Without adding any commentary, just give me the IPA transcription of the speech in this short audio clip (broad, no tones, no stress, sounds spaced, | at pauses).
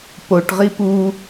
p o ʈ ʁ i p u